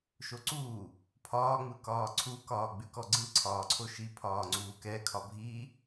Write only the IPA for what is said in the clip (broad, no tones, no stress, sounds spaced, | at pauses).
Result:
ʃ o ǀ uː | pʰ ɒː ŋ͡m ɯ k ɒː ǀʰ u k ɒː ɡ͡b ʉ k ɔ ɡ͡ǀ ɯ ǀʰ ɒː ǀʰ o ʃ i pʰ ɒː ŋ͡ǀ uː k ɛ kʰ ɒ bʱ iː